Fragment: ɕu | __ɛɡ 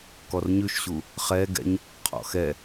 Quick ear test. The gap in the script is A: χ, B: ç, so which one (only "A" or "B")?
A